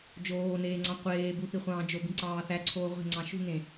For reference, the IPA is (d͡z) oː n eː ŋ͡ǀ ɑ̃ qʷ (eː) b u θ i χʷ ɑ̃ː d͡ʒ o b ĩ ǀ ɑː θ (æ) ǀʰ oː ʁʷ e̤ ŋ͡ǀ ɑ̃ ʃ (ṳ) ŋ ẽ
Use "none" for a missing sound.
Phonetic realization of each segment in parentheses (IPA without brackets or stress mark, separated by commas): d͡ʒ, eː, æ, ṳ